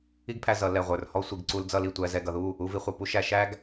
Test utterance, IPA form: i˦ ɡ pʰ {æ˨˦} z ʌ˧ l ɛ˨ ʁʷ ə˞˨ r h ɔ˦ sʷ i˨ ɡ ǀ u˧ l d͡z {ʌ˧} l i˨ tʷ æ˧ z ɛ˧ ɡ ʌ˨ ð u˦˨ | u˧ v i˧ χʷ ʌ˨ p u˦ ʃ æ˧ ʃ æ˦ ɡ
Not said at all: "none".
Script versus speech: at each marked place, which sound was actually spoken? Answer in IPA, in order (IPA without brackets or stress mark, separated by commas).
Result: æ˧, ʌ˧